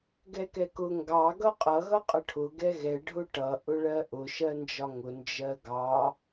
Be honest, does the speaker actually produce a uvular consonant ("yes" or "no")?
yes